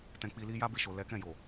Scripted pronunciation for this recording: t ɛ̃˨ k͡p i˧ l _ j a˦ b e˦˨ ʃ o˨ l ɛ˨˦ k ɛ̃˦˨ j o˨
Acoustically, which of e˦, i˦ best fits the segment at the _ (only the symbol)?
i˦